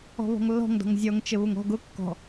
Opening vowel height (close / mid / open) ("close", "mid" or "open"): mid